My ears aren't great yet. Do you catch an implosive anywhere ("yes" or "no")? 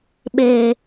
yes